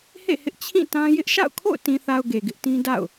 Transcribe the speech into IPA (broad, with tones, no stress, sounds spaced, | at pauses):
h ḛ˦˨ h ɪ˦ ʔ t͡ɕʰ ĩ˦˨ t ã˦ j ɪ˦ ʔ ʃ a̰˦˨ ʊ̯ kʰ o̰˦˨ ʊ̯ t ĩ˨ θ a˨ ʊ̯ ɡ e˨ ɡ ɪ˦ ʔ t ĩ˦ d a̰˦˨ ʊ̯